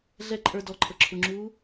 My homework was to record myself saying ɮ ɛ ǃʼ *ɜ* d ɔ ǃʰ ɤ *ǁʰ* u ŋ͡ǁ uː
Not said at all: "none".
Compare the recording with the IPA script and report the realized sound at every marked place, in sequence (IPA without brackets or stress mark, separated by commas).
ə˞, ǁʰ